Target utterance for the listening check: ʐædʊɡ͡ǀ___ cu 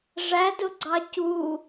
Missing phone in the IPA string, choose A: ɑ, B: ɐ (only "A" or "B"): A